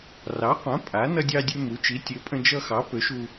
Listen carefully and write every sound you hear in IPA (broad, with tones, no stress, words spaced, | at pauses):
rɑ˩˥qʷã˩˥ pʼa˩˥ nʌ˧dʲɑ˧dʲø˧ mu˩˥ t͡ʃi˩˥tʲø˩˥pʼə̃˧ d͡ʒʌ˧xɑ˩˥ pø˩˥ʃu˧